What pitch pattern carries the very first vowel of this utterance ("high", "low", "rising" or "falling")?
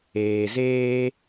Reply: low